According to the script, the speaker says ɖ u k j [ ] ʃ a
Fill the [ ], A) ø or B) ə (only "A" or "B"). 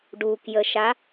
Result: B